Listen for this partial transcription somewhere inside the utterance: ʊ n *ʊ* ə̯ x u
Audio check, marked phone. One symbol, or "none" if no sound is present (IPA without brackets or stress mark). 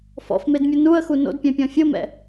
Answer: u